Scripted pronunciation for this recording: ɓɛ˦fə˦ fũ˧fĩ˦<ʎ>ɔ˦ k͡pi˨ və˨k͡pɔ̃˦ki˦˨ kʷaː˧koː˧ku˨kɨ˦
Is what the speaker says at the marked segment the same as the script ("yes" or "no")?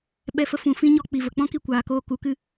no